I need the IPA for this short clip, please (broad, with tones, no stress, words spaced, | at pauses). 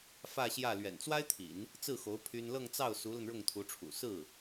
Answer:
fä˥˧ɕjä˥˩ lɥɛ̰˨˩nt͡swa˥ɪ̯t̪ʰḭ˨˩˦n | t͡sɹ̩˥˩xo˧˥ʊ̯ pʰy˥n lɤ˥˧ŋt͡sɑ˥˩ʊ̯ su˧˥lə˧n ɻʊ˥˩ŋt̪ʰu˧˥ʈ͡ʂʰṵ˨˩ sɹ̩˥˩